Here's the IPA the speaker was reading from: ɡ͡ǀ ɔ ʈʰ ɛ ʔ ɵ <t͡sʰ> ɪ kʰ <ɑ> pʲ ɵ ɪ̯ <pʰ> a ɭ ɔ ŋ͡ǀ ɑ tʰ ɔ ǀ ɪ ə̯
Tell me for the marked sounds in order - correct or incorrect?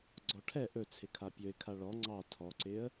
correct, incorrect: a, incorrect: kʰ

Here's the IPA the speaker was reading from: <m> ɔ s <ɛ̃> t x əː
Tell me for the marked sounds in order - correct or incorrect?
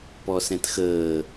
incorrect: p, correct

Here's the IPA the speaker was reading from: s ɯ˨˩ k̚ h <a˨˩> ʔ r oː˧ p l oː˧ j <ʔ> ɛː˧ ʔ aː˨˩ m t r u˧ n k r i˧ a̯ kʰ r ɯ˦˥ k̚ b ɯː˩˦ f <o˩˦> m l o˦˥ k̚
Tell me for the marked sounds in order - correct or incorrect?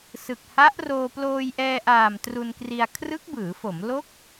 incorrect: a˦˥, correct, correct

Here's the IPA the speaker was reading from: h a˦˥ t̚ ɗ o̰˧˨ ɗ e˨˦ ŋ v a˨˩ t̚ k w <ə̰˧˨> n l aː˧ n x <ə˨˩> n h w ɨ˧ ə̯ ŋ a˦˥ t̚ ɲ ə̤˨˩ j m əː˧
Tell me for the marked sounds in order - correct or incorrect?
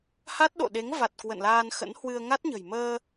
correct, incorrect: ə̰˧˥

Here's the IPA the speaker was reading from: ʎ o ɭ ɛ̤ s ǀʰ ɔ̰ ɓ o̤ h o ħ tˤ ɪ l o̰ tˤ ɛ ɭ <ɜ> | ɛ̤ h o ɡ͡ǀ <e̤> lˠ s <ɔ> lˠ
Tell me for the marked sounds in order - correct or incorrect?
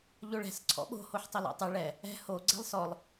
incorrect: ɛ, incorrect: ɛ̤, correct

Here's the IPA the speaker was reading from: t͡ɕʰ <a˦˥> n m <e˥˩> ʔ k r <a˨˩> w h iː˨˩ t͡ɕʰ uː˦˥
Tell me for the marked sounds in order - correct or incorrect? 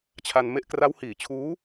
incorrect: a˧, correct, incorrect: a˦˥

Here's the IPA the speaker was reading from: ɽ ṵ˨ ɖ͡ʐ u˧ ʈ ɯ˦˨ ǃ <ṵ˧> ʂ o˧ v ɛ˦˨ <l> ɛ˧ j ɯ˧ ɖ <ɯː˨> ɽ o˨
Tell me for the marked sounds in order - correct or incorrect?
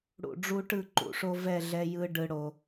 correct, incorrect: ɮ, incorrect: ɯ˨

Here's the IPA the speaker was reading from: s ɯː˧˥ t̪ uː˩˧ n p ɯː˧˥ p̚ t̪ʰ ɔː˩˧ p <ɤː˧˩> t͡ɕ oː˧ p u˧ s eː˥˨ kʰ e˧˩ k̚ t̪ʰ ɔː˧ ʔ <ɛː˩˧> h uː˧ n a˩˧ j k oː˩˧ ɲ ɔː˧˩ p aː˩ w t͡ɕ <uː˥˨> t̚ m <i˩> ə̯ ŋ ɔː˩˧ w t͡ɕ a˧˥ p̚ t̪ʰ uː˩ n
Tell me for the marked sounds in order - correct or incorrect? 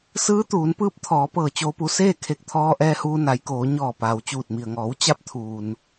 correct, incorrect: ɛː˧, incorrect: uː˧˩, correct

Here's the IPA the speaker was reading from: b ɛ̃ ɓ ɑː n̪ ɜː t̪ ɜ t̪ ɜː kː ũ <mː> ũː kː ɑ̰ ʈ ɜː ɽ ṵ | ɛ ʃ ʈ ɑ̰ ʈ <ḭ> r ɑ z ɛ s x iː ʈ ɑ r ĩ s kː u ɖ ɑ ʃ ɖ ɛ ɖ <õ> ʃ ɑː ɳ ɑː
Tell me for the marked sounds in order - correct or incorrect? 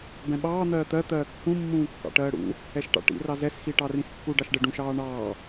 correct, correct, incorrect: ũ

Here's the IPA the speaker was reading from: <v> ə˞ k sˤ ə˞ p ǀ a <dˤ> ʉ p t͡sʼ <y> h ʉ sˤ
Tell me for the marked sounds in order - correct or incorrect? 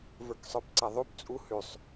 correct, incorrect: ðˤ, incorrect: u

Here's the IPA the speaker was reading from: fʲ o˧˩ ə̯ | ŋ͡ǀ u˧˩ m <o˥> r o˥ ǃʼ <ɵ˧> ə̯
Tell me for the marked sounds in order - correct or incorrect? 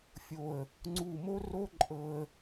correct, incorrect: ɤ˧

